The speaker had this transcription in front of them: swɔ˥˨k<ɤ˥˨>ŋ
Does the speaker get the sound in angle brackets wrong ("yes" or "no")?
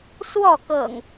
yes